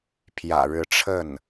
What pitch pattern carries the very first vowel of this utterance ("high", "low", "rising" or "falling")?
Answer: low